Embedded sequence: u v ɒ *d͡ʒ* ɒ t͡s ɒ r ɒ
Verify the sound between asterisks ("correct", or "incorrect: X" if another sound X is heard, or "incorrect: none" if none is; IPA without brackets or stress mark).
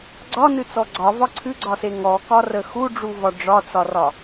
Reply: incorrect: ɖ͡ʐ